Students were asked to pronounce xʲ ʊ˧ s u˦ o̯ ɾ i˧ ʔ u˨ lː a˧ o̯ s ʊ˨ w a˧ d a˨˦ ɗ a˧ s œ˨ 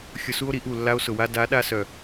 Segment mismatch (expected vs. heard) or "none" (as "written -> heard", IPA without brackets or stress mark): none